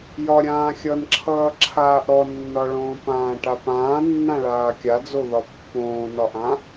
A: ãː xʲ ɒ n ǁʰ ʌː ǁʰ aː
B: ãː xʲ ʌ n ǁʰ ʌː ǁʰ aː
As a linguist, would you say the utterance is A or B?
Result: B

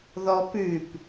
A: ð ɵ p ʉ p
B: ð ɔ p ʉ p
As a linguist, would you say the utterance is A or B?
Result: B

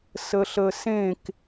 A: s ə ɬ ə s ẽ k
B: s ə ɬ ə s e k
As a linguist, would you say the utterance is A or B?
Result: A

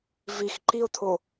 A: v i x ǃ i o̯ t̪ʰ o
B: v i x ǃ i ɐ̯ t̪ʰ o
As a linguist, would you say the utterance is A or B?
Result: A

